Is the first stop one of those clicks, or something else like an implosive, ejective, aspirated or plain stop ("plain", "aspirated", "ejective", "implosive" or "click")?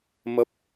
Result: plain